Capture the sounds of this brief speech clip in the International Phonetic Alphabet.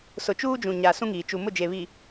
s ʊ˨ t͡ʃ uː˦ d͡ʒ ũ˨ ɲ a˨ s ũ˦ ŋ iː˨ t͡ʃ u˨ m ʊ˦˨ d͡ʒ e˨ β i˨

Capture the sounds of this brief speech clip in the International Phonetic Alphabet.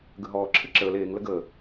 ɡ ə ɦ ɔː ǁʰ ɨ ǁ əː l eː ŋ l ə ɡ əː

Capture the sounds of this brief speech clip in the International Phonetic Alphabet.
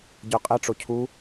ɟ œ qʼ ɛ ʈ͡ʂ o cʰ u

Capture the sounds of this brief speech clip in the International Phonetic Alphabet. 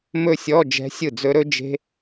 m ɵ˥˧ sʲ ɔ˧˥˧ d͡ʒ ɛ̤˦˥ sʲ ɯ˥˩ d͡z ɵ˦˥ ɾ ɵ˦˥ d͡ʒ e̤˦˥

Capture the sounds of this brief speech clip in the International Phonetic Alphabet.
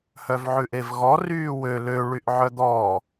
h œ v ʕ ʉ ʔ e v ɣ ɔ r yː w ø l ø ɭ y ʔ ʕ œ d̪ ɔː

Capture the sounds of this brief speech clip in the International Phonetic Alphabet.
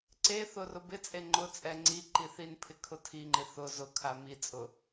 ǀ e θ ʊ r ʊ b ɪ t͡sʼ e ŋ͡ǃ ʊ t͡sʼ ɛ ŋ͡ǀ i ǃ i θ i n pʰ ɪ kʰ ʊ tʰ i ŋ͡ǃ ɪ θ ʊ z ʊ kʰ a m i t͡sʼ ʊ

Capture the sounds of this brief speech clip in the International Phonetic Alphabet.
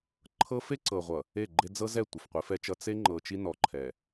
ǃʰ ɤ˦ f e˦ ǀ ɤ˨ ʁʷ ʌ˨ | e˦˨ ɡ͡ǃ e˦ d͡z ɤ˦ z ɛ˦˨ tʷ e˨ f qʷ i˨˦ f ɛ˦ t͡ʃ ʌ˦ t͡s e˦ ŋ͡ǃ ɤ˨ t͡ʃ i˦ n ɔ˨ ǃʰ ɛ˨

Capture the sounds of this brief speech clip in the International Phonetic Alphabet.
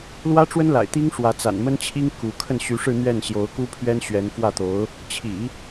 l w ä˥ ʈ͡ʂ w ə˥ n l a̰˨˩ ɪ̯ t̪ i˥ ŋ ʂ w ä˧˥ t͡s a̰˨˩ n m ə˥ n t͡ɕʰ i˥ ŋ k u˧˥ kʰ ə˥˩ n ɕ y˧˥ ʂ ɻ̩˥˧ n̪ ɥ ɛ˥˩ n ɕ j o˧˥ ʊ̯ k u˥ pʰ ɥ ɛ˥ n ɕ ɥ ɛ˧˥ n f w ä˥˩ t̪ o˧˥ ʊ̯ | t͡ɕʰ ḭ˨˩˦

